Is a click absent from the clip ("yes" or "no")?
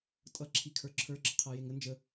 no